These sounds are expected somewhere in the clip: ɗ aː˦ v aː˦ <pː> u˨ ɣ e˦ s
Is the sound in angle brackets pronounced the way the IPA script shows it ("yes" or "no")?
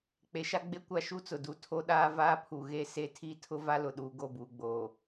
no